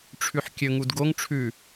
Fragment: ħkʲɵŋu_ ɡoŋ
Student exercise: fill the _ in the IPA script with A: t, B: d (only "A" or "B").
B